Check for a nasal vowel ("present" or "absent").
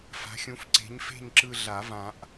present